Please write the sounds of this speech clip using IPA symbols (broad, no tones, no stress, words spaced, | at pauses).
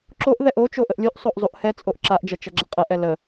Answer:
ǁoʔ ðɛʔo t͡ʃoʔəʔlʲuʔ sˤoʔzˤuʔhɛ t͡sʼoʔǁaʔd͡ʒɐ t͡ʃɐɡ͡ǁɐqʼɐʔ ɛlə